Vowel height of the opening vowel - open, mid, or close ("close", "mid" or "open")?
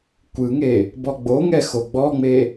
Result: close